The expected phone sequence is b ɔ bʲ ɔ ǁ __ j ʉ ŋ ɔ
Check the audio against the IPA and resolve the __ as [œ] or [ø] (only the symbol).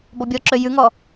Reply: ø